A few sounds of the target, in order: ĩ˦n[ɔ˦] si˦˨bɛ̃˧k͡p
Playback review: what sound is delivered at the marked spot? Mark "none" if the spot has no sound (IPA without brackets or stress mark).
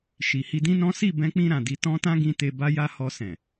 ɔ̃˦